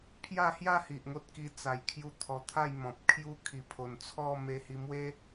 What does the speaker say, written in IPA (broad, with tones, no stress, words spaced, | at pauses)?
pʰja˥˧hja˥˧hi˨ʔ ŋo˦t̚ki˧ t͡sa˨˩jkʰju˧ t̪ʰɔ˧t̪ʰa˥˧jmɔ̃˨p̚kʰju˦ kʰi˨˩pʰo˨˩nt͡sʰɔ˥˧ me˧ hi˧ mwe˦